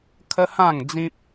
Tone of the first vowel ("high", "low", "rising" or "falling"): high